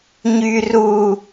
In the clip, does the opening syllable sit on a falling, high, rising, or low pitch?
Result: high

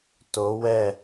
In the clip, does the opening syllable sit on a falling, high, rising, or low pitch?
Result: rising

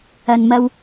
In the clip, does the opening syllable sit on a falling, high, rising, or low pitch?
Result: low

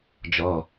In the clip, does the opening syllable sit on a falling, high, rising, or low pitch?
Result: low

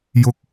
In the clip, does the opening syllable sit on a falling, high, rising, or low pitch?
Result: high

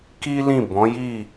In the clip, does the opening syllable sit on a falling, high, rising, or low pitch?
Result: high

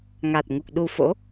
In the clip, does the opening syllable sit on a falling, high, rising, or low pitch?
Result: low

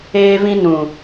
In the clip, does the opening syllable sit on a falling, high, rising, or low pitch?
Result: high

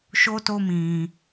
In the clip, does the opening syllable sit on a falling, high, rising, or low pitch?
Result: high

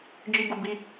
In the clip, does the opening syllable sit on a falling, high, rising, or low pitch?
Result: high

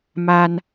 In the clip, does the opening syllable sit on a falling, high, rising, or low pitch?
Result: high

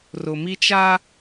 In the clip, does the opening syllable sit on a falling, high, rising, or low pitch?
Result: low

